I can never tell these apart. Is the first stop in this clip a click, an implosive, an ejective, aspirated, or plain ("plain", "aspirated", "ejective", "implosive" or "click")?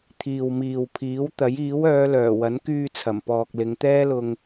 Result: aspirated